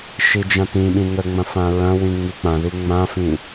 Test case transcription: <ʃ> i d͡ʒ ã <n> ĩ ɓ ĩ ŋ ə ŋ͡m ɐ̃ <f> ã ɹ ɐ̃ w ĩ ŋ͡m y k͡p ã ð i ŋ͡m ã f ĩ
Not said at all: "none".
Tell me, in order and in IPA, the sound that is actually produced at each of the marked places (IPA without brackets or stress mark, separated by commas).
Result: ʃ, t, f